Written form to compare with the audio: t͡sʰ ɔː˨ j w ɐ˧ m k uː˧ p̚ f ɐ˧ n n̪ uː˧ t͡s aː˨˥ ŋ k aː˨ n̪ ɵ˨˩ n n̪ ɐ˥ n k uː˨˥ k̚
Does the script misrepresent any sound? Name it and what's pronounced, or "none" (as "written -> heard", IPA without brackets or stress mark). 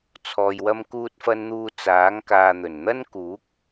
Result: p̚ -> t̚